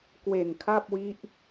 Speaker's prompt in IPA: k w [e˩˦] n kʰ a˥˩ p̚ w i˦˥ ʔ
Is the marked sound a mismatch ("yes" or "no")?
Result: yes